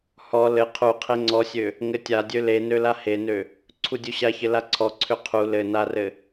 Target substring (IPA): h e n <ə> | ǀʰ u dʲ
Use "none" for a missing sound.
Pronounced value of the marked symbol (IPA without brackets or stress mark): ø